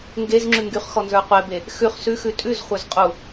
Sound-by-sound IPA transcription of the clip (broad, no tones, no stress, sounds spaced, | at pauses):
ŋ ɡ e z ŋ͡ǁ ʉ ŋ ɡ y χ x ɔ n z ə˞ qʷ e b e | x ʉ χ s ʉ x ʉ tʼ ʉ z χʷ ə˞ z qʼ u